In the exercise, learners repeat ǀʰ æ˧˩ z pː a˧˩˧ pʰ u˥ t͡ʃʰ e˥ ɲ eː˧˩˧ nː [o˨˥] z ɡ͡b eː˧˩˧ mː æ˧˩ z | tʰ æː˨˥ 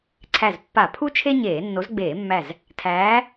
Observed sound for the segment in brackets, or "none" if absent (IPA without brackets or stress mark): o˨˥